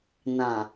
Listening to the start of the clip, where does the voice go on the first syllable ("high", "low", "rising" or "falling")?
low